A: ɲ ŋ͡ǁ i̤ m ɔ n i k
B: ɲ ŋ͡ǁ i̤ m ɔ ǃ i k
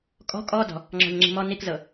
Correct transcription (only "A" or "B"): A